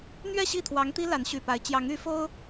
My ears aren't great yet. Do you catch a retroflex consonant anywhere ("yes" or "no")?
no